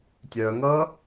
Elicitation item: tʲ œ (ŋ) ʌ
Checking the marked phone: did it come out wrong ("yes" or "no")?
no